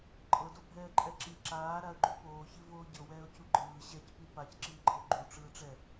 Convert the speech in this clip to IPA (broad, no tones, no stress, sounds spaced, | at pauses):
ǃʼ ɤ d o bʱ ɛː ǃʼ ɛ ǁ i ǁ aː ɾ a ə̯ ɡ͡ǃ u p oː ç i v oː ɟ ɤ w ɛː ʊ̯ c u ɡ͡ǃ ɯː ɕ ɛ c p i p a c ǁ iː ɡ͡ǃ ɤ ʊ̯ ɡ͡ǃ u ʈ͡ʂ ɯː ʈ͡ʂ ɛ